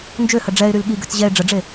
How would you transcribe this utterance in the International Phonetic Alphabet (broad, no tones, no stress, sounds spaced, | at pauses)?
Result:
n d͡ʒ ø h ə ɖ͡ʐ ɛ ɪ̯ ɾ y l ɠ i ɡ ø t͡s ʑ ɛ ɪ̯ ɖ͡ʐ ə ɖ͡ʐ e